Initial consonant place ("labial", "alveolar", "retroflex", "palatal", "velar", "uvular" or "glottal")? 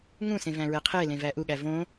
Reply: velar